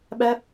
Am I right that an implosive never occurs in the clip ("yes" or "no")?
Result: no